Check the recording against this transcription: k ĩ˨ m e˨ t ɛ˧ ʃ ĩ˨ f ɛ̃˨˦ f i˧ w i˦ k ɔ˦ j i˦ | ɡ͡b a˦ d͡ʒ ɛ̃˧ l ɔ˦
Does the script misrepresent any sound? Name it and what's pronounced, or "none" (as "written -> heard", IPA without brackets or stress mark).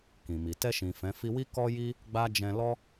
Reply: e˨ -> i˨